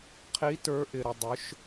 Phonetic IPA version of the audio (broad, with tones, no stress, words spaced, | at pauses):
qʰi˧˥ tə˞˧˥ʔɪ˧ɾə˧ dˤʊ˧˥ʃ